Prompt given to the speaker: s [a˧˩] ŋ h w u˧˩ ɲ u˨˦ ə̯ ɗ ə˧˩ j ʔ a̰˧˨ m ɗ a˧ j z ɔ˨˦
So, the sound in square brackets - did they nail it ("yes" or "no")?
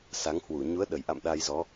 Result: no